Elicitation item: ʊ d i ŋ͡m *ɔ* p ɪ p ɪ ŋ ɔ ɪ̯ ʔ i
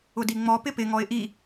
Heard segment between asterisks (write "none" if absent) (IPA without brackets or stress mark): ɔ